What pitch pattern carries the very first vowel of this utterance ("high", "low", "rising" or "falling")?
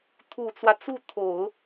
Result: low